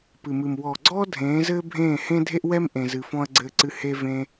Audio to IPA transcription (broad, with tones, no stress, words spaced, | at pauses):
pɨ˨mɨ˨m wɔː˨ɡ͡ǀɔː˦ dʱẽː˨˦zɘː˦bʱẽː˦˨hẽ˦ dʱe˦ʔwɛ˦m ʔẽ˧zɨ˧ fɔ̃˧ɐ̯ ɡ͡ǀɘː˧ǀɨ˧ he˧ vẽ˧